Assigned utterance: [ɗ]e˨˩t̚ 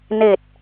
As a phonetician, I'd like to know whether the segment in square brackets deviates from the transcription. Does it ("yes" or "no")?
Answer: yes